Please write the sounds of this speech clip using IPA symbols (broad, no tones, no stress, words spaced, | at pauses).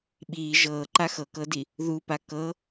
ɓiː ʒɤːǃa xɤkɤdi | ðupa kɤ